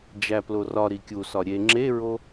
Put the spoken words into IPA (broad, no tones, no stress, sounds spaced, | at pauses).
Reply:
d͡ʒ æ p l o r ɒ ɾ i kʲ u s ɒ ɾʲ e ŋ͡ǁ e ɹ o